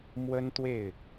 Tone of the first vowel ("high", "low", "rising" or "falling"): high